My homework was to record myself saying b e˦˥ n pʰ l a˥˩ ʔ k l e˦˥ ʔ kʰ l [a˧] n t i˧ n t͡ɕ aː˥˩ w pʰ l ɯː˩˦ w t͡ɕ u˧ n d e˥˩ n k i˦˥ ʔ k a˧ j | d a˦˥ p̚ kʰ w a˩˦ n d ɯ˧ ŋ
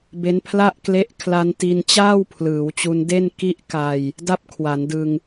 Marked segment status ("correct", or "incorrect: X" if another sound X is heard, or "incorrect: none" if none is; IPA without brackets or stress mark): correct